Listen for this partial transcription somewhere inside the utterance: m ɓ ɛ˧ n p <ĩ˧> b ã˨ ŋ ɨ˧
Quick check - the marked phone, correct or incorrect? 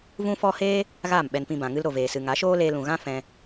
correct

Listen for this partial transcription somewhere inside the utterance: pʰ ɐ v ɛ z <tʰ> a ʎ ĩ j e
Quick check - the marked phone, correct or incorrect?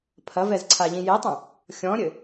incorrect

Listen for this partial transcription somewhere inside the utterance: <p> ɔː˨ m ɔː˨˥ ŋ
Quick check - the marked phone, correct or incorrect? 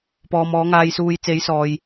correct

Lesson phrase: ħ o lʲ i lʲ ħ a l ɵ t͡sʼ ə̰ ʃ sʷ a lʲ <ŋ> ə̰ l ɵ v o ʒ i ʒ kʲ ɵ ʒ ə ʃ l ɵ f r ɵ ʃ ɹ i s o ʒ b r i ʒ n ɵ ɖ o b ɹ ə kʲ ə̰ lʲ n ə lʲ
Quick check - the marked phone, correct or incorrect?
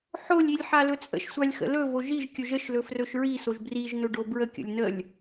incorrect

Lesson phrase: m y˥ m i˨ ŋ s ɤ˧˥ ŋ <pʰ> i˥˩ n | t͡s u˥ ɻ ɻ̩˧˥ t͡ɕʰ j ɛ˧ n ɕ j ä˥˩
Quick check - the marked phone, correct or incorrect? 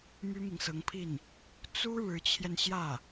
correct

